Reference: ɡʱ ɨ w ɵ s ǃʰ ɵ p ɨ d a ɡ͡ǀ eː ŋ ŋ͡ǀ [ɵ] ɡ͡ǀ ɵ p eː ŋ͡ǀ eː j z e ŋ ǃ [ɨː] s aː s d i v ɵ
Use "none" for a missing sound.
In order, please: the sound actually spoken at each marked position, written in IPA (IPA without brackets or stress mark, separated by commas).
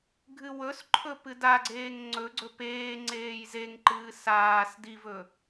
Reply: ɵ, ɨː